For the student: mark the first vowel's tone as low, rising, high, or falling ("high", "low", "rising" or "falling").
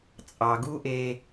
low